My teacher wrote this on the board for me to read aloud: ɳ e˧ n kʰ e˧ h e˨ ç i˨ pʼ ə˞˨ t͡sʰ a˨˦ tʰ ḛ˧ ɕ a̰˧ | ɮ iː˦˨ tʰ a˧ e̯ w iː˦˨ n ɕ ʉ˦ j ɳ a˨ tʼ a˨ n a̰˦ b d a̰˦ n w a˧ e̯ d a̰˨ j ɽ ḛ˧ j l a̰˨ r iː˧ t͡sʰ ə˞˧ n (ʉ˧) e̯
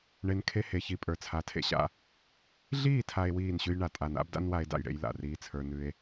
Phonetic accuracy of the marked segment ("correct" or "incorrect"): correct